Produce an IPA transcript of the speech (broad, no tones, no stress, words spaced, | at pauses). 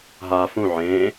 ɦa fũ ʕẽ